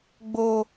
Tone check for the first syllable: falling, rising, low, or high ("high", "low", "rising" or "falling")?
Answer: high